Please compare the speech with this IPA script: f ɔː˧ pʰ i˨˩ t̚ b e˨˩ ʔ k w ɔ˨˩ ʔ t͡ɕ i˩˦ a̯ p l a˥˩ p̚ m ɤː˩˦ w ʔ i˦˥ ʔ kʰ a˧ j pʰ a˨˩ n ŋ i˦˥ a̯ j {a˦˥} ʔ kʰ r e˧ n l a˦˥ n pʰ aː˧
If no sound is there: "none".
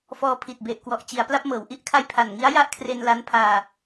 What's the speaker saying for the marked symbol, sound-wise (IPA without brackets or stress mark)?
a˦˥